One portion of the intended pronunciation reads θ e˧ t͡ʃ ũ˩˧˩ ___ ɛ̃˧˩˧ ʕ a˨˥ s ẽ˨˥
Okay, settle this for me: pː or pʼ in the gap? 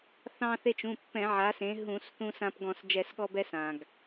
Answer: pː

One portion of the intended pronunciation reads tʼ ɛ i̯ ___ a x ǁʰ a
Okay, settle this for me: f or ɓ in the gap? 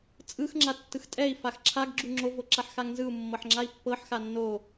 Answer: f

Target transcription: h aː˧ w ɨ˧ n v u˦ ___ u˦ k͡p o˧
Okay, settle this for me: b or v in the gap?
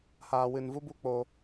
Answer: b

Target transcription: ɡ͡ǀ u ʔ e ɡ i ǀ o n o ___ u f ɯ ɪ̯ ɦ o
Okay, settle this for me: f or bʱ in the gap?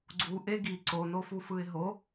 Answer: f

